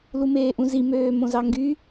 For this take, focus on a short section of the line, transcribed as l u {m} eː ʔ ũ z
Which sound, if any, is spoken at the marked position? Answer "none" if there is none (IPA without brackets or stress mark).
m